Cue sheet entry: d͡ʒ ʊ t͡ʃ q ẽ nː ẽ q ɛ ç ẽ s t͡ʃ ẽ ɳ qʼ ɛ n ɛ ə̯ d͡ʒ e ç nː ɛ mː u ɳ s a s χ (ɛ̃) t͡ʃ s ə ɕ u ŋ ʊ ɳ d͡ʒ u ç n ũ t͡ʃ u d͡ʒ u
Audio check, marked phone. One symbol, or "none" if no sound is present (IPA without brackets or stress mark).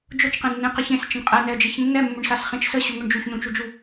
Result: ẽ